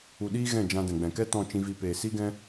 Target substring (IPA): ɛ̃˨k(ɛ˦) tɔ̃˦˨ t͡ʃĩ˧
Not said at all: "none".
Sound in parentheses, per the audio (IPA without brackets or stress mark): ɛ˦